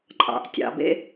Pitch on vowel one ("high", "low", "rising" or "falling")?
low